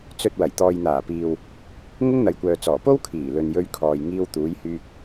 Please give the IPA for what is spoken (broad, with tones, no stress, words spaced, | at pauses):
t͡sɵ˧t̚wɐ˨˩j t̪ɔː˨jn̪aː˨˩piː˨w | ŋʊ˥ŋn̪ɐ˨jkʷœː˨ t͡sɔː˨˩po˥w kʰiː˨˩lɵ˨njɵ˧ɥkʰɔː˨j ŋiː˧wt̪uː˨˧jhyː˧k̚